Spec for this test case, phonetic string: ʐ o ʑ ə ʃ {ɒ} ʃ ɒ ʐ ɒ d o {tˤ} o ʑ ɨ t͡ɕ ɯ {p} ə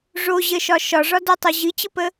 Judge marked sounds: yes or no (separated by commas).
yes, yes, yes